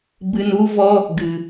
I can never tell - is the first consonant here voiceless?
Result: no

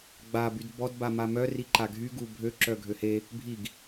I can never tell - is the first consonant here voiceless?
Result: no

